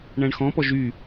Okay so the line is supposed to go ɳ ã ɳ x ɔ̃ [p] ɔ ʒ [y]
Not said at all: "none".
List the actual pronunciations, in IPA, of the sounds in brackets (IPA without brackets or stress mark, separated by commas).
p, y